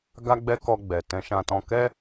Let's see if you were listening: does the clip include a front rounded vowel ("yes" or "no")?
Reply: no